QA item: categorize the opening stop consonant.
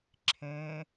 click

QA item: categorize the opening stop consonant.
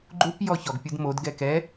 click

